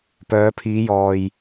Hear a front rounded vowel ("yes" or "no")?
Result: yes